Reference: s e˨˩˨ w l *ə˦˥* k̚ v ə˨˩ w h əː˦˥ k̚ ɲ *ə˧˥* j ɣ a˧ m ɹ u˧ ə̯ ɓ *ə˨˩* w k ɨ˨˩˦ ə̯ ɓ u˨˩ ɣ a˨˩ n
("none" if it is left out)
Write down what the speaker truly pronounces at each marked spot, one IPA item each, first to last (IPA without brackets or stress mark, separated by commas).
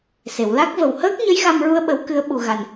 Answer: a˦˥, ə˧˥, ə˨˩˦